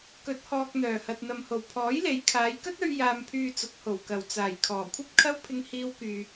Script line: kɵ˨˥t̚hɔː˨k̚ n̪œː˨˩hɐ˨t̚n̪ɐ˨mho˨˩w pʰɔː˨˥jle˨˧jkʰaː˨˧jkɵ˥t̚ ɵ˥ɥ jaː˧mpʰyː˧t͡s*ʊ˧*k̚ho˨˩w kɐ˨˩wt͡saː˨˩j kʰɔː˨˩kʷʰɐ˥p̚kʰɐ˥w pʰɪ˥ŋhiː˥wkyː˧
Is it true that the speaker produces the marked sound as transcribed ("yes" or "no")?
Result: no